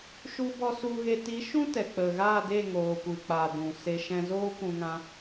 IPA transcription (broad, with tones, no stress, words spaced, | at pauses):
ʃu˧bɔ˧ su˧ɣe˧ ti˨˦ʃũ˦ tɛ˨ k͡pə˨ ɣa˦˨de˦˨ ŋoː˨kʷɨ˨k͡pa˨ dũ˨se˧ ʃɛ̃˧zoː˦kʷũ˧ŋã˧